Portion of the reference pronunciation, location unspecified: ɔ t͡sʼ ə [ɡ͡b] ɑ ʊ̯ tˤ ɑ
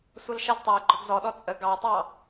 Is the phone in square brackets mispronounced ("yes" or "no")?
yes